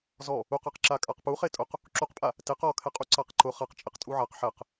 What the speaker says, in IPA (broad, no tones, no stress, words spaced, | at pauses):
zɔ | uqaqǁa kʼaqpu χetʼʊq | ǁuqpʼa | teq ɔkʰɛqʼu ǀaqǃʊ χaq t͡ʃʼɪqtʼuʕaq ħɛq